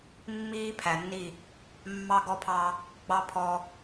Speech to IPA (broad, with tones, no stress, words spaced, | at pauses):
mːiː˦pʰæ˨nːi˦˨ | mːɑ˦ɡɔ˦pʰɑ˦ | ɡ͡bɑ˦pʰɔ˦